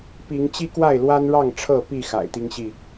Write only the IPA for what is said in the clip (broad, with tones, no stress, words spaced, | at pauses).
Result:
pi˨˦ŋ t͡ɕi˦kwa˥˨ɪ̯lwa˦n ɻɑ˥˨ŋ ʈ͡ʂʰɤ˥˨pi˥˨ xa̰˨˩ɪ̯t̪i˦ŋɕi˥˨